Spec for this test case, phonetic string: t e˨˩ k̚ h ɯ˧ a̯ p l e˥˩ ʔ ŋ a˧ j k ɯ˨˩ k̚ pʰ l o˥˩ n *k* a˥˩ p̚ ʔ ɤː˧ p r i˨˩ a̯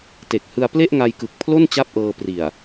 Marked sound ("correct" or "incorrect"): incorrect